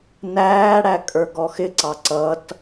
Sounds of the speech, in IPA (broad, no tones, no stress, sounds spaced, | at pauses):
n æː ɽ æ kʼ ə˞ ɡ ɔ x ɪ ǀ ɑ ǀ ʌ t